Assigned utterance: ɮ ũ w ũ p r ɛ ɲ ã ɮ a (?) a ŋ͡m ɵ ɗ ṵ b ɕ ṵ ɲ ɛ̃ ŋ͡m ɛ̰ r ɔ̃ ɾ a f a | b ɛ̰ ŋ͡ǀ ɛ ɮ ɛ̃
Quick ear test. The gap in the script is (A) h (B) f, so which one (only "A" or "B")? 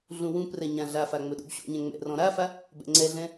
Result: B